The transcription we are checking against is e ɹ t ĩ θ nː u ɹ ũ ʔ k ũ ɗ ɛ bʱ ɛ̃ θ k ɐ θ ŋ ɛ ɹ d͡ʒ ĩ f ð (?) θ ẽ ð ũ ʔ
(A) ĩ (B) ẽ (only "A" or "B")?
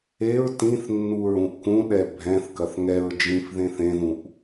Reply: B